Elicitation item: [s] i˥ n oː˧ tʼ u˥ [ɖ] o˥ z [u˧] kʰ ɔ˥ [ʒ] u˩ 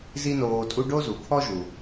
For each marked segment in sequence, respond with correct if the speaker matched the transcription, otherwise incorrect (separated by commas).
incorrect, correct, incorrect, correct